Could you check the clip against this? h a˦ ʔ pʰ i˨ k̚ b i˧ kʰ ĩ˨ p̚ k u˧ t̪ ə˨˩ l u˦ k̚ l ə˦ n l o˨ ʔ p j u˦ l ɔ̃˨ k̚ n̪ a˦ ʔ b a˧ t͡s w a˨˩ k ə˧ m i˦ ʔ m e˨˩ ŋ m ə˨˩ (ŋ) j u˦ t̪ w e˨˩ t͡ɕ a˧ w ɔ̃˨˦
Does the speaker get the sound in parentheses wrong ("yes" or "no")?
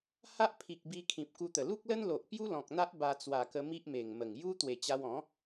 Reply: no